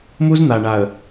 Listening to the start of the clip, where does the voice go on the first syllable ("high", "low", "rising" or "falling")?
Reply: high